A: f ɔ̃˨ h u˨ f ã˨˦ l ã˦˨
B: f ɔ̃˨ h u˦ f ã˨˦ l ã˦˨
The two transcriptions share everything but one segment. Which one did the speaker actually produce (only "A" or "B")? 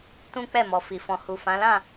A